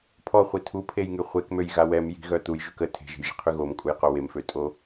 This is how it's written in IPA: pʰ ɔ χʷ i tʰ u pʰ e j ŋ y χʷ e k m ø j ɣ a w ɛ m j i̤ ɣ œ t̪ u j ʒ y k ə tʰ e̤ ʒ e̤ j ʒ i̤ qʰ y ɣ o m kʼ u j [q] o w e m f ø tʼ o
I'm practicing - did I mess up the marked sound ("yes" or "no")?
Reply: no